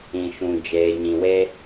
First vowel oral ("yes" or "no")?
no